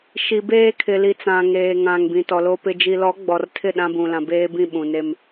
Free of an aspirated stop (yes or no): no